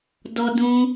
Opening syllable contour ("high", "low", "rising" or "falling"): high